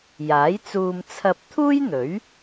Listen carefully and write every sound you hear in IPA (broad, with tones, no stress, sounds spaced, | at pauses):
j aː˨˥ j t͡s uː˧ m t͡sʰ ɐ˧ p̚ t̪ʰ uː˥ j n̪ ɵ˨˥ ɥ